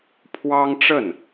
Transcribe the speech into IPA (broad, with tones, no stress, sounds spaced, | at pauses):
pʰ w ɑ˥ ŋ ʈ͡ʂ ə˥˩ n